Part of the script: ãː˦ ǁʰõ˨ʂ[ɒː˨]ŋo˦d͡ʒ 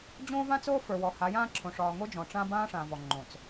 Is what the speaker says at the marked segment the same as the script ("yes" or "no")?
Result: yes